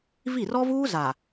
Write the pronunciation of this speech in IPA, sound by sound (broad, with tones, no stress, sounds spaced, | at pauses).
v i˦˨ r ɔ˦ v uː˦ z a˨